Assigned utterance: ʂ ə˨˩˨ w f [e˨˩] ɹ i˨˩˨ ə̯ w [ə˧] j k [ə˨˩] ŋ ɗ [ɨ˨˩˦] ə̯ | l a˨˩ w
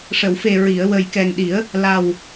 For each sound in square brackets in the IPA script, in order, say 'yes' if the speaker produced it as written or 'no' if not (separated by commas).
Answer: yes, no, no, no